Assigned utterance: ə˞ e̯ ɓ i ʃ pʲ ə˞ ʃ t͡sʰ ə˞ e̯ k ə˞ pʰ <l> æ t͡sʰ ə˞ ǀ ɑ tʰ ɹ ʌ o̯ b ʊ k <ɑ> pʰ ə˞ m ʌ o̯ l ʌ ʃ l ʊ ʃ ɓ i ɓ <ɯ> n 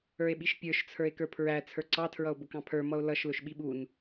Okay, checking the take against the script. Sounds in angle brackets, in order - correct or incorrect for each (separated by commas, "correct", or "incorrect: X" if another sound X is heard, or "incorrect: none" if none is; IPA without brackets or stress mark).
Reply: incorrect: ɹ, incorrect: ɑ̃, incorrect: u